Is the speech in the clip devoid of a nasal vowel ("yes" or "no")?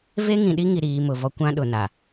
no